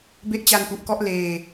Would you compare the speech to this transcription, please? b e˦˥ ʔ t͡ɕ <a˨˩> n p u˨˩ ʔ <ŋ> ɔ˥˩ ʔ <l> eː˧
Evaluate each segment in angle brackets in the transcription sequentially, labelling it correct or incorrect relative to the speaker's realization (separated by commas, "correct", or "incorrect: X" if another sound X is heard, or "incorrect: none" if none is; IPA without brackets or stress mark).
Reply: incorrect: a˧, incorrect: k, correct